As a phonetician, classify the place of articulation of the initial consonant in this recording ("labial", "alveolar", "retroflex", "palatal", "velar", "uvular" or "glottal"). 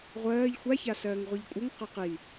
uvular